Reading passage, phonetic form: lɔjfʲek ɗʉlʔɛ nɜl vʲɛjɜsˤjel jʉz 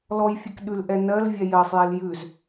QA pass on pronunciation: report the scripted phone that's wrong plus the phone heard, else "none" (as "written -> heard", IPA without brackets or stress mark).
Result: none